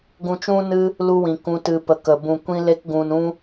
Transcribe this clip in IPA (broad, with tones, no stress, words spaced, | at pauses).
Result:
ɡũ˧t͡ʃũ˦ nɨ˦ | lu˧wĩ˨ kũ˨tɨ˨pə˨ kə˨ bũ˨kʷĩ˧le˧k ɡũ˨nũ˧